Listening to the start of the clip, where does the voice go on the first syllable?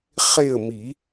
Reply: falling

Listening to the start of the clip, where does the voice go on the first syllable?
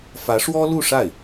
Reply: rising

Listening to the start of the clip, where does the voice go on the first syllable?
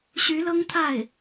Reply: rising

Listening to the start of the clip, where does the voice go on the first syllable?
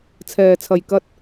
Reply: low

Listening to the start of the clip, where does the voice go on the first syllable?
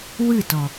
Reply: falling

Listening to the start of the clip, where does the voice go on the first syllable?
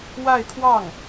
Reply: falling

